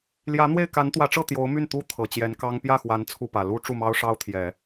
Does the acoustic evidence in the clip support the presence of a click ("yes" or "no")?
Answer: no